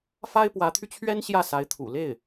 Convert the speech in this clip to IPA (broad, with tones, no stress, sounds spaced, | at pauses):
f a˥ ɪ̯ p w ä˧˥ t̪ʰ y˧ t͡ɕʰ ɥ ɛ˥ n ɕ j ä˥˩ s a˧˥ ɪ̯ t̪ʰ ṵ˨˩ l e˥˩ ɪ̯